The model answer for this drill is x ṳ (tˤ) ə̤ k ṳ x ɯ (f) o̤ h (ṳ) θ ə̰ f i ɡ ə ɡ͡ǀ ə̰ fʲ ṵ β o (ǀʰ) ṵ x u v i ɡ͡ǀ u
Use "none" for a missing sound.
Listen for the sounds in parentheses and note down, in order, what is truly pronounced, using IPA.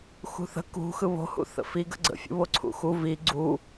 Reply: θ, β, ṵ, ǀʰ

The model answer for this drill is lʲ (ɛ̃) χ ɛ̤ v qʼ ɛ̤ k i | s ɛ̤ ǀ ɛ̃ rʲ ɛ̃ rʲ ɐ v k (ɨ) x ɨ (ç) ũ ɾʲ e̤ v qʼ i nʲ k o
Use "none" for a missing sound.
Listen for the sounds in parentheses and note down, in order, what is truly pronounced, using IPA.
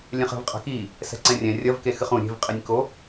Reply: ɛ̃, e, χ

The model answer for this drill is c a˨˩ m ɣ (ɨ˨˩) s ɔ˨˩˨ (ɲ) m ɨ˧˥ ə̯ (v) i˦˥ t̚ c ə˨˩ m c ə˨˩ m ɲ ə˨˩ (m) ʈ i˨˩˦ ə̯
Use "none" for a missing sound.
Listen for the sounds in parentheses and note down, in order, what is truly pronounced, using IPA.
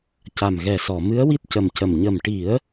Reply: ɛ˨˩, none, w, m

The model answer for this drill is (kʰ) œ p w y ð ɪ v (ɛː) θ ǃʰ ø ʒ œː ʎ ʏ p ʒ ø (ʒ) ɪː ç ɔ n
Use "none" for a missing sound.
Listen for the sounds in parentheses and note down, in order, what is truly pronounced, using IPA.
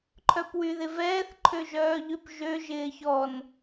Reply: ǃʰ, ɛː, ʒ

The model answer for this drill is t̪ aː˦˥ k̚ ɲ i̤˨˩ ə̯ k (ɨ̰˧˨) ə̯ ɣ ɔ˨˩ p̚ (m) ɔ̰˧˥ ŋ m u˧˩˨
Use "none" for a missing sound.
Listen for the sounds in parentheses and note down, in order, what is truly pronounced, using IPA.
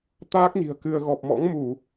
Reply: ɨ˧, m

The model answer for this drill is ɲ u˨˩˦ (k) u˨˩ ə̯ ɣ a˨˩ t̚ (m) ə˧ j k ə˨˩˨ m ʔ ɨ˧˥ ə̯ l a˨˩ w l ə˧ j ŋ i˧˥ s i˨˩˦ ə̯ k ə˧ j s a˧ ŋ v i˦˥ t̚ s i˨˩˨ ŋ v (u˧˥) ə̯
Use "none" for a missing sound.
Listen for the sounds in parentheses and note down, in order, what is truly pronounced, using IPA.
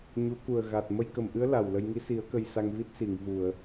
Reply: k, m, u˨˩˨

